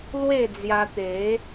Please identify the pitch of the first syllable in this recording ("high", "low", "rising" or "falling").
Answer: falling